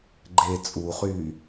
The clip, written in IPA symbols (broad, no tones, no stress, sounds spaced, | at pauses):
ɡ͡ǃ e t͡sʼ u χ yː